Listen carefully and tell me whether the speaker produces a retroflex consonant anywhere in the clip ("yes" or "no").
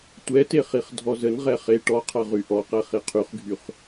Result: yes